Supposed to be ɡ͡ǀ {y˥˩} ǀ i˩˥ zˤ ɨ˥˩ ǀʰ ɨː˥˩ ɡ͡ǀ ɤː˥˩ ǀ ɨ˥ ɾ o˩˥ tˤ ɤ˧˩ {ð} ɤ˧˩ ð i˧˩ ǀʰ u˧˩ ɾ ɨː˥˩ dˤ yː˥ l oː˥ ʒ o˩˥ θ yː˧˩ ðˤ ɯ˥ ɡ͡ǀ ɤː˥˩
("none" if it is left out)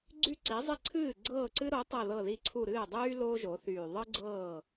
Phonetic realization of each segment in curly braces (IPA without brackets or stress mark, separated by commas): y˥˩, ð